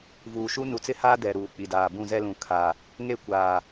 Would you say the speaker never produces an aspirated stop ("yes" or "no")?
no